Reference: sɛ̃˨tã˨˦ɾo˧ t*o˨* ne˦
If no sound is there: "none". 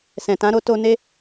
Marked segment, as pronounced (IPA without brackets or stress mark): o˧